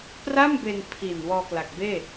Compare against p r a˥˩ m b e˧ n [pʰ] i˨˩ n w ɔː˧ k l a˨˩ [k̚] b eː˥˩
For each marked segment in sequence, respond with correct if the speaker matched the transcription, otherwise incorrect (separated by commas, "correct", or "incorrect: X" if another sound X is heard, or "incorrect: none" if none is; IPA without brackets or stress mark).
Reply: correct, correct